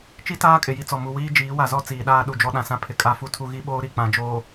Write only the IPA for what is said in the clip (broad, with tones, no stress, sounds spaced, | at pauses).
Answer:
t͡ʃ i˦ t aː˦ kʼ ɪ˨ j i˦ t͡s ɔ˨ m u˨ w iː˦ d͡ʒ iː˨˦ w a˨ z ɔ˦ t͡s iː˨ ɗ aː˦ ɗ u˨ d͡ʒ ɔ˦ ɗ ã˨ s ã˦ pʰ ɪ˨ kʼ a˦ f u˦ tʰ u˦ ɣ i˦ ɓ oː˦ ɾ i˨ k͡p ã˨ d͡ʒ oː˨